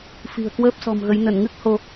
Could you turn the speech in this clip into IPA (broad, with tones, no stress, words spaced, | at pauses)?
fi̤˨˩ə̯kwəː˦˥p̚ sɔ̤˨˩mɣə˨˦j nə˧˩nŋɨ˦˥k̚ ho˧